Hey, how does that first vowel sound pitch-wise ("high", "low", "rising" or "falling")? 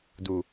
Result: low